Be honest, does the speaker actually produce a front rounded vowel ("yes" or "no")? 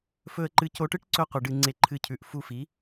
no